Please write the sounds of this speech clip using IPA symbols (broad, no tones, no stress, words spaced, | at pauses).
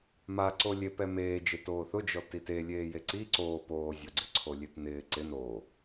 ma ǀolʲe pɛmeːd͡ʒe toːθʊd͡ʒɔ tite lʲeːjeǀi ǀoː poːzʲoɡ͡ǀɪǀʰo lʲepnɪː ǀɪn o